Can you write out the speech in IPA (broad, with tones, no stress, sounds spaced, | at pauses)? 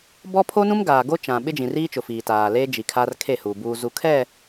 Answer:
b ɔ˦ pʰ o˦ n ũ˦ m ɡ aː˨ ɡ o˦ t͡ʃ ã˨ ɓ ɪ˦ d͡ʒ ĩ˨ r iː˦ t͡ʃ ʊ˨ f iː˨ t aː˨ l eː˦ d͡ʒ i˨ kʰ a˦ r kʰ e˦˨ h uː˨ b uː˨ z u˨ kʰ ɛ˦˨